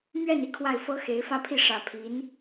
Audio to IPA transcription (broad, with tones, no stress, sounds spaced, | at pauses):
m ɥ ɛ˥˩ n i˥ kʰ w a˥˩ ɪ̯ f ɤ˥ x e˧˥ ɪ̯ f ä˥˧ pʰ i˥˩ ʂ ä˨˩ pʰ i˧˥ n